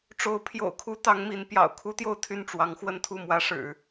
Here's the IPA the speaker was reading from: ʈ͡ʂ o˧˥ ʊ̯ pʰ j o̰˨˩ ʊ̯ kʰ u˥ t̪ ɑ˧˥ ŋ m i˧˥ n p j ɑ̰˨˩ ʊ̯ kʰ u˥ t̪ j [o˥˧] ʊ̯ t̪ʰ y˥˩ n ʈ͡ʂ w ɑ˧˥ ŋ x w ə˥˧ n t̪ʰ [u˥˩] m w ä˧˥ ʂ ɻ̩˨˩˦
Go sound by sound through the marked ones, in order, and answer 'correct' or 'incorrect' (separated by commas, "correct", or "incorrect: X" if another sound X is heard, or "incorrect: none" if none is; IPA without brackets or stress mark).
correct, correct